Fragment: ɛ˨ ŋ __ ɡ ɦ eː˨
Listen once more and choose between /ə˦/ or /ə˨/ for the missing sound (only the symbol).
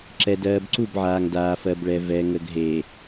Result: ə˨